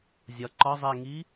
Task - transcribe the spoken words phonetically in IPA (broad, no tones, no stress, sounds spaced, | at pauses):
zʲ ɒ ǃ ɒ zˤ ɛ ŋ i